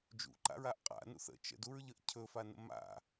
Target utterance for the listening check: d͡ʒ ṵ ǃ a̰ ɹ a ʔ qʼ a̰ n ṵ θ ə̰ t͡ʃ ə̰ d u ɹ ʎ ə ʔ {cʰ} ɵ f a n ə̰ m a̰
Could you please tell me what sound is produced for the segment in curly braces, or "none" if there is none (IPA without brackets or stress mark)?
cʰ